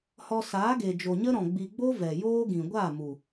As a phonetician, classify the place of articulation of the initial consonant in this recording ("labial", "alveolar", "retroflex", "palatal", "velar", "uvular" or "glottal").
glottal